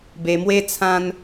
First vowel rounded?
no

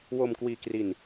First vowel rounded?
yes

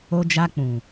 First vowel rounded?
yes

